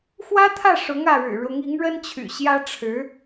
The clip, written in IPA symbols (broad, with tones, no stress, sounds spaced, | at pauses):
x w ä˥ t̪ʰ ä˥˩ ʂ ʊ˧˥ ŋ ä˥˩ ɻ ɻ̩˨˩ ɻ ʊ˧˥ ŋ i˧˥ ŋ ɻ ə˥ n t͡ɕʰ y̰˨˩ ɕ j ä˥ ʈ͡ʂʰ ɻ̩˧˥